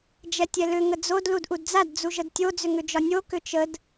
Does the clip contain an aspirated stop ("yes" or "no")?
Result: no